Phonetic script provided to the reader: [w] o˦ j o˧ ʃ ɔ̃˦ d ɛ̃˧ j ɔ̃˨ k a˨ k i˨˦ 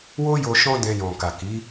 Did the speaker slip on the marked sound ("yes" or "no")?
no